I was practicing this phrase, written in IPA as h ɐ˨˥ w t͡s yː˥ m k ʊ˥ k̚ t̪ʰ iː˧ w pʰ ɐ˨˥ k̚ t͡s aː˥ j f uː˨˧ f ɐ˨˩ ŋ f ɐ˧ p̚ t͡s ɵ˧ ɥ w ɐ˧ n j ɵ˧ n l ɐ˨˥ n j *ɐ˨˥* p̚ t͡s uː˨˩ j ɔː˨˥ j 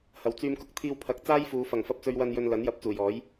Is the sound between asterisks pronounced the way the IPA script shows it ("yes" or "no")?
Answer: no